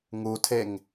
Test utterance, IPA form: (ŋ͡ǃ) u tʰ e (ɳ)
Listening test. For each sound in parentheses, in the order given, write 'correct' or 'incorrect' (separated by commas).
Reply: incorrect, incorrect